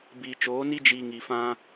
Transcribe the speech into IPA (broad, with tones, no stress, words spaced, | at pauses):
biː˨t͡ʃoː˨˦ni˦ d͡ʒiː˧ŋi˨ fã˧